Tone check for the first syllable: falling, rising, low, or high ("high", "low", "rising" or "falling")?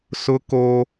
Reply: high